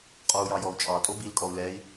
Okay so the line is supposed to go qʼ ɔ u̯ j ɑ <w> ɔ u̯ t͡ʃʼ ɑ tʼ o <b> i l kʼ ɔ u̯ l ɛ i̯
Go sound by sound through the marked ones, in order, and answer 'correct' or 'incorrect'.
incorrect, correct

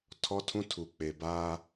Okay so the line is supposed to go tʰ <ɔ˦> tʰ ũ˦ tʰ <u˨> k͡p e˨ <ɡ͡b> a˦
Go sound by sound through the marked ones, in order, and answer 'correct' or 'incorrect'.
correct, correct, incorrect

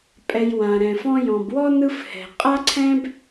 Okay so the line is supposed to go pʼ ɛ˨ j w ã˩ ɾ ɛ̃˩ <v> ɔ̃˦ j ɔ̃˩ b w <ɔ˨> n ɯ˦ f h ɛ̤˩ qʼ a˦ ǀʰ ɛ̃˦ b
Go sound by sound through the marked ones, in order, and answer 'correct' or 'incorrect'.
incorrect, incorrect

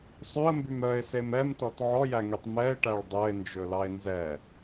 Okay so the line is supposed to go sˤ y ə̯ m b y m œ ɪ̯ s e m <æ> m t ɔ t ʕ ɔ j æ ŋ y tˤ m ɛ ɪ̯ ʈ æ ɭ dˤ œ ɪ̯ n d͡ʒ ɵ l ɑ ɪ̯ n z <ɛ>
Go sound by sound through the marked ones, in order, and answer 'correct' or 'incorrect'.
incorrect, correct

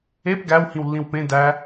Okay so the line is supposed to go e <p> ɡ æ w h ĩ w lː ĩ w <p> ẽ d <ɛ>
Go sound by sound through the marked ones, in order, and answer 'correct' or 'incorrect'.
correct, correct, incorrect

